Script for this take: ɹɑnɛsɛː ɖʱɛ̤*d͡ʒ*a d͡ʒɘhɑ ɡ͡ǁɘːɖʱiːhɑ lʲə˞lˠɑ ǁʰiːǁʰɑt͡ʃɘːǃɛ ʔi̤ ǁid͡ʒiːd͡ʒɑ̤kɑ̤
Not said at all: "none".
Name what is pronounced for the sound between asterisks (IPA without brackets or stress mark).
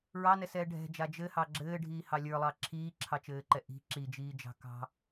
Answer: d͡ʒ